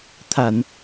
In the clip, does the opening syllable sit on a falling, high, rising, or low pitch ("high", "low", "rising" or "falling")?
low